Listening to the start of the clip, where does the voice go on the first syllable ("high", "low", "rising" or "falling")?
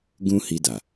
high